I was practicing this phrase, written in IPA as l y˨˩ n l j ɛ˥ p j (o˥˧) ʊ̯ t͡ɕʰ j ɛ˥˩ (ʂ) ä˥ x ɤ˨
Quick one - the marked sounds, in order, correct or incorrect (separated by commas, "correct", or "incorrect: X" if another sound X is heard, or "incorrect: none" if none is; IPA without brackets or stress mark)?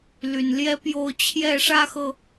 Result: correct, correct